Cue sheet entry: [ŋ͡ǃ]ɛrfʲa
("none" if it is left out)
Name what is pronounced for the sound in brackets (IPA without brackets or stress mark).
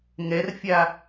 ŋ